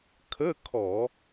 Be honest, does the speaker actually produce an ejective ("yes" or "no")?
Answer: no